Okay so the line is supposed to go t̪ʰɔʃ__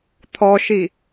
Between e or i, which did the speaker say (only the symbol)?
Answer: i